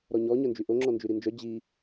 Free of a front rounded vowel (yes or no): no